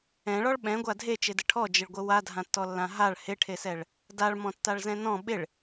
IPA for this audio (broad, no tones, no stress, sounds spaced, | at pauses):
ɛ̃ ɭ ɔ ɭ ɓ ɛ̃ ɡʷ a dʱ e t͡ʃ e d ɘ ʈʰ ɔ d͡ʒ ɪ ɭ ɡʷ ɘ w a dʱ ã tː ɔ lː ã ɦ a ɭ h ɪ ʈʰ e s ɛ ɭ | d a ɭ m ɔ̃ tː a ɭ z ɛ̃ n ɔ̃ ɓ ɪ ɭ